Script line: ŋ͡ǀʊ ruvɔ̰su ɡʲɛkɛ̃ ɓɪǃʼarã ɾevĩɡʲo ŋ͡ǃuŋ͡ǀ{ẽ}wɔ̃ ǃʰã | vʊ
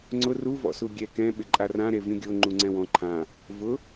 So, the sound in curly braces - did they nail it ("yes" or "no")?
no